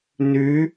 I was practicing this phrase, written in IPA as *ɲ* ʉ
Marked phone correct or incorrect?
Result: incorrect